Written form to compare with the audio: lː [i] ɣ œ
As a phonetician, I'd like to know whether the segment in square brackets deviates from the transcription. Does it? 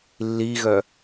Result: no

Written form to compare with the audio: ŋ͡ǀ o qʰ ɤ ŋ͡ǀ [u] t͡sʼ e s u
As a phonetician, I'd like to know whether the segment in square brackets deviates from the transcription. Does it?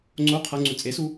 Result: no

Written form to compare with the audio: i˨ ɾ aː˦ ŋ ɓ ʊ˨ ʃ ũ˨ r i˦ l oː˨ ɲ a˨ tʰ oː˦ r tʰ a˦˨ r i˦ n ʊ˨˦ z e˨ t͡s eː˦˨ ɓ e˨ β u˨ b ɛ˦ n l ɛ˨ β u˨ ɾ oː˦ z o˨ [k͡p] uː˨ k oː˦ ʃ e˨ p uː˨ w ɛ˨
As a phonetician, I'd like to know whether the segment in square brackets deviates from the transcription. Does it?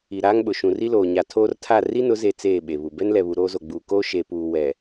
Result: yes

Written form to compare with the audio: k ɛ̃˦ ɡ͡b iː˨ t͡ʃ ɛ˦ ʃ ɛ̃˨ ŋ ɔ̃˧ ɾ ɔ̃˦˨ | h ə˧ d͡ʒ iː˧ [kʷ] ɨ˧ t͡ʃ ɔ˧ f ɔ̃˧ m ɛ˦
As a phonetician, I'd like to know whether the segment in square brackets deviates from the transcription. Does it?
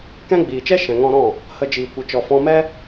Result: no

